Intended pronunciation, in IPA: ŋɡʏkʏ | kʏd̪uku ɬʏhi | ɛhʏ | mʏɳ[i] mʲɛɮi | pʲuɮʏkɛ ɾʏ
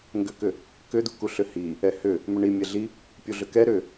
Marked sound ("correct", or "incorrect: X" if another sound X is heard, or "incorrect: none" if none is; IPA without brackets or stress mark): correct